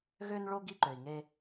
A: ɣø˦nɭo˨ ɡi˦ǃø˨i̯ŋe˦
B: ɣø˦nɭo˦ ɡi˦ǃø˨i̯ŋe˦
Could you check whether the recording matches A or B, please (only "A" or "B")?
B